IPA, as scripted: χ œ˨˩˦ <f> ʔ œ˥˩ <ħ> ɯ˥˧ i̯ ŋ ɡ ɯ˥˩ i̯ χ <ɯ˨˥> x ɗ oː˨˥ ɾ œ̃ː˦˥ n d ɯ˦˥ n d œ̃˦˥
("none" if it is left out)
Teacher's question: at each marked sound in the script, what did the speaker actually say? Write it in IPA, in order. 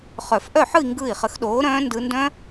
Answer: f, ħ, ə˨˥

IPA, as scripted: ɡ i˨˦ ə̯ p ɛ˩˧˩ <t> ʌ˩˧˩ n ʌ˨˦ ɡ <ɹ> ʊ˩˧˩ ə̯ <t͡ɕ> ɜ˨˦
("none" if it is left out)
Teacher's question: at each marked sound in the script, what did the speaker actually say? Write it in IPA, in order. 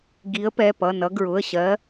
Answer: p, ɹ, ɕ

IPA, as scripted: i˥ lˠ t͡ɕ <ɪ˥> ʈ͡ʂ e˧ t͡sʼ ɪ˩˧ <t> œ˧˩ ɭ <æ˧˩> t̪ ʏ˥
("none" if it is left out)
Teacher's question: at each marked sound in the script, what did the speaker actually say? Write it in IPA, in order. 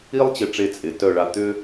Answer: ɪ˧˩, t, a˧˩

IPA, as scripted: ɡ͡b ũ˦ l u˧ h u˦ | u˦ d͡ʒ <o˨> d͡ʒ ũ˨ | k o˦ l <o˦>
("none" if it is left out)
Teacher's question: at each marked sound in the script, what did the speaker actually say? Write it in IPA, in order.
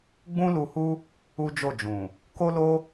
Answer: o˦˨, o˦

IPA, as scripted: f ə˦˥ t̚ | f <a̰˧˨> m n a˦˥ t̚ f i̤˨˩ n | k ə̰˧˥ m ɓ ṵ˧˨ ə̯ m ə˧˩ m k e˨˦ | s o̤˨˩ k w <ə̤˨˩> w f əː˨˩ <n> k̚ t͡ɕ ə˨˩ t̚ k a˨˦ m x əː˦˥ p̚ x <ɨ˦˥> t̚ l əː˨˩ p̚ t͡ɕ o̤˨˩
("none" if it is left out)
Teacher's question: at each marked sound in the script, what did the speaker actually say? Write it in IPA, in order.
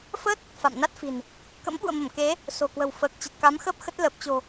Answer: a̰˧˨, ə̤˨˩, none, ə˦˥

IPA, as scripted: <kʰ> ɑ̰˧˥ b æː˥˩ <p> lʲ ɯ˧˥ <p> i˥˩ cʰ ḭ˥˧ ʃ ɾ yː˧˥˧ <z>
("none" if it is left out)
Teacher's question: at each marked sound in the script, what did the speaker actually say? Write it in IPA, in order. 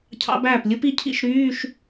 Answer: cʰ, p, p, ʃ

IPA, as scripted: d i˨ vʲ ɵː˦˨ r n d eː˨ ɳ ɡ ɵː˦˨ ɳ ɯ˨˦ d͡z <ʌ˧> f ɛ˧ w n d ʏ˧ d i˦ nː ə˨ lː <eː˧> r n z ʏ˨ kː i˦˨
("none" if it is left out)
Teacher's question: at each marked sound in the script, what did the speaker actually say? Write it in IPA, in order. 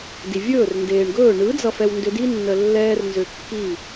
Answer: ʌ˧, ɛː˧

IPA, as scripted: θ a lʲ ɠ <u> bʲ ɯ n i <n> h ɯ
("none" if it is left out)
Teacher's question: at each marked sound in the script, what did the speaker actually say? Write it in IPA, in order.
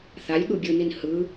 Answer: u, n

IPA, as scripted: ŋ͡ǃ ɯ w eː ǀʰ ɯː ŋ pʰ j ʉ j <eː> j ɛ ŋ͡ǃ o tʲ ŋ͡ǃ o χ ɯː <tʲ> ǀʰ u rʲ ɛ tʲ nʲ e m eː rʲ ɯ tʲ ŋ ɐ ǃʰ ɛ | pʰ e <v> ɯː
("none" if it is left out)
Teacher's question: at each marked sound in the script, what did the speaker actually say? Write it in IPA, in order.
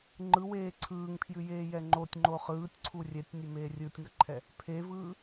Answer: eː, tʲ, v

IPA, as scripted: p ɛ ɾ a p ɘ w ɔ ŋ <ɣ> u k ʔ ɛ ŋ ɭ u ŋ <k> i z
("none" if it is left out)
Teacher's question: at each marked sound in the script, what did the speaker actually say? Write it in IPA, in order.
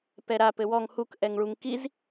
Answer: h, k

